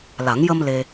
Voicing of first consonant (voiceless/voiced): voiced